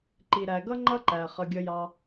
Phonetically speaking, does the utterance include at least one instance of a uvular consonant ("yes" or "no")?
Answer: yes